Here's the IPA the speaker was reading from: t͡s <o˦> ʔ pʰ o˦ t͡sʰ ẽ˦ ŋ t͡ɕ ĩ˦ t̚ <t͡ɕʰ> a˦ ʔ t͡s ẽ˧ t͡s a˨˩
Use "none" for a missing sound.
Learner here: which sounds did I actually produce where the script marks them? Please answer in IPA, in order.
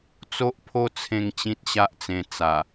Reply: o˦, ɕ

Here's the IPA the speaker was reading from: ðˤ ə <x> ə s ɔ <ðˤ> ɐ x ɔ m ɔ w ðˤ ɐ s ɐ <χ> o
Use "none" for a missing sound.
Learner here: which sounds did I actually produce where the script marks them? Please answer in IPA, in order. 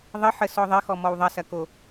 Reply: ħ, ðˤ, k

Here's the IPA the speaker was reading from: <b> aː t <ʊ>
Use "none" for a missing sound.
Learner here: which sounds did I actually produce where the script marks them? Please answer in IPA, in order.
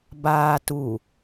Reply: b, u

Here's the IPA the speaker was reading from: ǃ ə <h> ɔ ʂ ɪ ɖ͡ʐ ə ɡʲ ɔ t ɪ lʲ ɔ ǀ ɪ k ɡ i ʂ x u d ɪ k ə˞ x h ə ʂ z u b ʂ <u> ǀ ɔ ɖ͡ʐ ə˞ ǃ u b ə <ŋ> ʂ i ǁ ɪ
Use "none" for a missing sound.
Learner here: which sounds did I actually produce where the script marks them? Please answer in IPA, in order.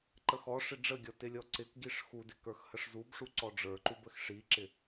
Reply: x, u, x

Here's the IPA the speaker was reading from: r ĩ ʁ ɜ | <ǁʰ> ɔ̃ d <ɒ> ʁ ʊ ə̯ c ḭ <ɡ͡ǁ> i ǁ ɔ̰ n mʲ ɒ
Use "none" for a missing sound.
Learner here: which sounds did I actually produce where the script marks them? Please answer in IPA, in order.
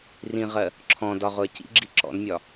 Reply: ǁʰ, ɒ, ɡ͡ǁ

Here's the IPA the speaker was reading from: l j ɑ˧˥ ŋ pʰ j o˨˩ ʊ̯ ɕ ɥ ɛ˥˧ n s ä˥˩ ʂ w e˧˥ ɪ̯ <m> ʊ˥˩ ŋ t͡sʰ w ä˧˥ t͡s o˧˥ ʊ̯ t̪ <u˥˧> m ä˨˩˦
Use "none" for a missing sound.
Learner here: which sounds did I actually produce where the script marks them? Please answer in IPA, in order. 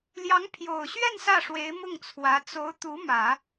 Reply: m, u˧˥

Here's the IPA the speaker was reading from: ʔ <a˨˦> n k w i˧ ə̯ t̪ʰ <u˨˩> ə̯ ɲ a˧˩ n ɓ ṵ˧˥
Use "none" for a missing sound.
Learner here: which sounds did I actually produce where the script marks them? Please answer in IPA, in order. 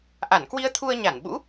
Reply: a˧˩, u˧

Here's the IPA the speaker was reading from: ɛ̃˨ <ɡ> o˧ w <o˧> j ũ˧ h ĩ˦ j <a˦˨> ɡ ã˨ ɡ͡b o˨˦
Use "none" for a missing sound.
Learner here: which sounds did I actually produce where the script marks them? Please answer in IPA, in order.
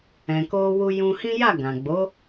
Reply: k, u˧, a˦˨

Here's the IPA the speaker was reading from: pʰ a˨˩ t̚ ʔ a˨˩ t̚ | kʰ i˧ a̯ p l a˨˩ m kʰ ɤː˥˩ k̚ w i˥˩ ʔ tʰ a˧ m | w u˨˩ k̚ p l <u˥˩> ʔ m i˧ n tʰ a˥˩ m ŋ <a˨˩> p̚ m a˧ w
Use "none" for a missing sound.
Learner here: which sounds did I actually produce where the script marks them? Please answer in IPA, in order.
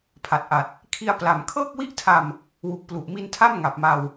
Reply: u˨˩, a˨˩

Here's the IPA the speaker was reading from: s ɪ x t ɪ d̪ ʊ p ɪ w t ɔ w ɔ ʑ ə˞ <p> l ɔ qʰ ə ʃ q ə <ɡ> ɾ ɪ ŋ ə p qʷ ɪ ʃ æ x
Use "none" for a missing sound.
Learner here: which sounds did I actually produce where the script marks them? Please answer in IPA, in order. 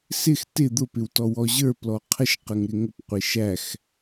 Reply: p, ŋ

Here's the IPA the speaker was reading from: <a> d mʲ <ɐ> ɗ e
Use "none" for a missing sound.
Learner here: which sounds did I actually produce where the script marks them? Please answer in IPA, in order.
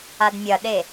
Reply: a, ɐ

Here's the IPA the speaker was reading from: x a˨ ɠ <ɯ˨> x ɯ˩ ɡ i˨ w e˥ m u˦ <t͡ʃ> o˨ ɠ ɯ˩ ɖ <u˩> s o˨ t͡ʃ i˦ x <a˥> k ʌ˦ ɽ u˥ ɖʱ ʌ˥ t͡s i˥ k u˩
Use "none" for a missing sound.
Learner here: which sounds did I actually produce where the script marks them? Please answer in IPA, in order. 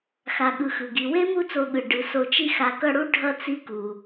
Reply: ɯ˨, t͡s, ɯ˩, a˨

